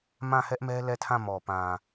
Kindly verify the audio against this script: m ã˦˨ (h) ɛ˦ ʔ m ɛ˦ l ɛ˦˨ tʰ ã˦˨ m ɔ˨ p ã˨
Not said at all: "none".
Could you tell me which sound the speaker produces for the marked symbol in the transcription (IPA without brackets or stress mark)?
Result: h